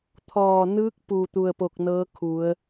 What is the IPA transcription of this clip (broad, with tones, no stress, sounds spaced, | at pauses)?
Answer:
t̪ʰ ɔː˧˩ n ɯː˧˥ k̚ p u˧˩ t̪ u˧ ə̯ p o˧ k̚ n ɤː˧˥ kʰ u˩˧ ə̯